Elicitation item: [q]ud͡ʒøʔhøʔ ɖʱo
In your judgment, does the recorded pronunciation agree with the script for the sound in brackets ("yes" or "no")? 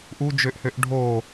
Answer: no